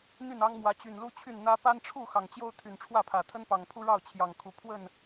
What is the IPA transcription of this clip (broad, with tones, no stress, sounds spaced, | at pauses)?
n̪ y˥˨ n ɑ˦ ŋ m w ä˨˦ t͡ɕ y˨˩ n l u˦ t͡ɕʰ y˥˨ n n̪ ä˦ p a˦ n ʈ͡ʂʰ u˥˨ x ɑ˨˩ ŋ t͡ɕ j o˦ ʊ̯ t̪ʰ y˨˩ n ʈ͡ʂʰ w ä˥˨ pʰ ä˨˩ t̪ʰ ə˦ n p ɑ˨˩ ŋ pʰ u˦ ɻ ɑ˥˨ ʊ̯ t͡ɕʰ j ɑ˨˩ ŋ kʰ u˨˦ pʰ w ə˥˨ n